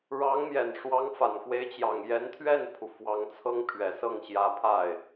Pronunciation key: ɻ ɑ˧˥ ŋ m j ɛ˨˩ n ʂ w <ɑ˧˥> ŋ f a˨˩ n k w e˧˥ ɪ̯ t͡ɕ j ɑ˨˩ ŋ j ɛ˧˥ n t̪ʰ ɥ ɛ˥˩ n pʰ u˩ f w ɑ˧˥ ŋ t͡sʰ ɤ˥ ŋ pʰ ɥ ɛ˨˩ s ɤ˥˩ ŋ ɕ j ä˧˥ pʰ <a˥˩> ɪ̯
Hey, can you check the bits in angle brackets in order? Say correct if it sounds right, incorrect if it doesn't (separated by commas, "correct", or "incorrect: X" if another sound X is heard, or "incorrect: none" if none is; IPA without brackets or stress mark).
correct, correct